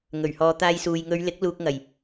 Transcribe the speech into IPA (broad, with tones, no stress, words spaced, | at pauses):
ŋɵ˨˩ɥhɔː˨˧t̪aː˧jsuː˨j ŋɵ˨˧ɥlɪ˨˥k̚ luː˧k̚ŋɐ˨˩j